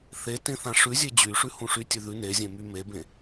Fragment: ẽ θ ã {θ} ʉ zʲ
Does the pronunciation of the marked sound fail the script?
yes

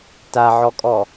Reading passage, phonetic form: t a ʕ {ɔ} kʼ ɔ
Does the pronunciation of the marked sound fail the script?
no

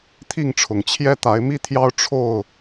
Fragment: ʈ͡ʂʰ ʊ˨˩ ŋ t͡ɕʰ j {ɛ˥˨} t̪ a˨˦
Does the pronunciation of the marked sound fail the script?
yes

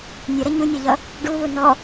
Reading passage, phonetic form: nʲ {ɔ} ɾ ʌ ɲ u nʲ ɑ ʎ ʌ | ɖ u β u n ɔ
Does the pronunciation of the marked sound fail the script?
yes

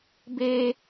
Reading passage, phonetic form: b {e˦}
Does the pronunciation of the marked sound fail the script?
no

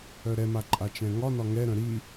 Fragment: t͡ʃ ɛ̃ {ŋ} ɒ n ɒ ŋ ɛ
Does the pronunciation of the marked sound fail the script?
no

